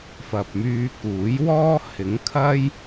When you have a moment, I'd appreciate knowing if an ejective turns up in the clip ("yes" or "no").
no